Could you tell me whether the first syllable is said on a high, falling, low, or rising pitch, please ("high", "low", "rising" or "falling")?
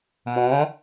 rising